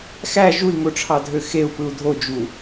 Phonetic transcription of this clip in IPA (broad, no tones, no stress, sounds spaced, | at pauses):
x æ ʒ u i̯ ŋ o ʈ͡ʂʰ ɑ dʱ ø x e u̯ p ɯ u̯ dʱ o d͡ʒ u